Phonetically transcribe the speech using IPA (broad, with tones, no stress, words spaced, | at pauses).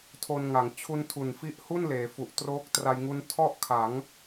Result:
tʰo˧nŋa˩˦ŋ t͡ɕʰu˧ntʰu˨˩nfi˦˥ʔhu˥˩n leː˩˦fu˨˩ʔ troː˦˥k̚tra˧jŋu˦˥n tʰɔ˥˩ʔkʰa˩˦ŋ